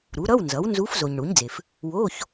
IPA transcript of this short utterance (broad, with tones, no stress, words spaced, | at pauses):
ɾu˩˥ɾʌ˧˥˧wnzʌ˩˥w nzu˧˥f zo˨ɲɳu˩˥ɲd͡ze˨f | wo˧˥˧ç